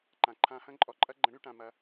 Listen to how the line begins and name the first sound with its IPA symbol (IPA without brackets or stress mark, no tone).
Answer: ǃ